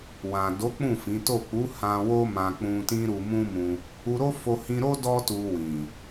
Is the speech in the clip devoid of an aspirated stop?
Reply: yes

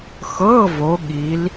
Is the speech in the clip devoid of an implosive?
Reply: no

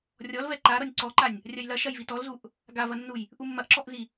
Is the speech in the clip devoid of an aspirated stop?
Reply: yes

